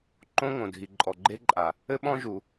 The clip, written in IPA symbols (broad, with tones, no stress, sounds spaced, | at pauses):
ǃ õ˥ ŋ õ˩ dʱ i˩ ǃʼ ɔ˩ ɡ͡ǃ e˥ ǃʼ a˩ | ɘ˥ ɓ ɔ̃˥ ʒ u˩